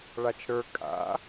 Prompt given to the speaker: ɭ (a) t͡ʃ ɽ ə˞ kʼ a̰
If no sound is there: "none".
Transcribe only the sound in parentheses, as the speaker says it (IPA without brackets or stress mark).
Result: a